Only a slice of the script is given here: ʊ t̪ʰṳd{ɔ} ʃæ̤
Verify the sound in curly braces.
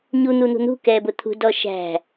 correct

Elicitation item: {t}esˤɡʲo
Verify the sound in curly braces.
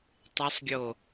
incorrect: tˤ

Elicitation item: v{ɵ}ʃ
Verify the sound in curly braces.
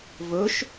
correct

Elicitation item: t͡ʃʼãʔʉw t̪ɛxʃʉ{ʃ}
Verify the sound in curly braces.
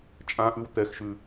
incorrect: none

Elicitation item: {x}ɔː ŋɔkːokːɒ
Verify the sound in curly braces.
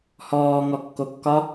incorrect: h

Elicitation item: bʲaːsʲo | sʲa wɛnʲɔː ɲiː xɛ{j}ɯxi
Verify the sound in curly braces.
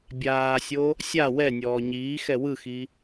incorrect: w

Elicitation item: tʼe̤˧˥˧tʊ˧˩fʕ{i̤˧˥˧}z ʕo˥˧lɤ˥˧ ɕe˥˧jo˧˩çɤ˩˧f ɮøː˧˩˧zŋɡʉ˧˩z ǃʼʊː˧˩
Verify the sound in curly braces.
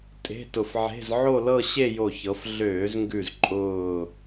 incorrect: e̤˧˥˧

